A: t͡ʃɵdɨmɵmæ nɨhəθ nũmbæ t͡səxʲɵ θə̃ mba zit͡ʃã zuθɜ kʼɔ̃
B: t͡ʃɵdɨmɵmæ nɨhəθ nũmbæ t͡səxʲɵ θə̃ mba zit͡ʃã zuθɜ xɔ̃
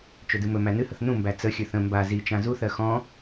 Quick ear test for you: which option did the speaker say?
B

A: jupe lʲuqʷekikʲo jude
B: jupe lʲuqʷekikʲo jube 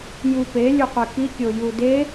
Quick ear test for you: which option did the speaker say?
A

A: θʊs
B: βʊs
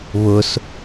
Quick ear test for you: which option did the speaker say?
B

